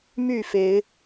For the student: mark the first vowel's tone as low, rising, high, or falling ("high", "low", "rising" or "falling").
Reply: falling